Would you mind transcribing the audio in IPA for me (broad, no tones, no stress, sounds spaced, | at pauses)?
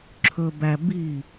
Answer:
ǁʰ ɵ b æ b i